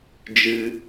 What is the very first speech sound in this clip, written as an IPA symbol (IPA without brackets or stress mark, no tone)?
d͡ʒ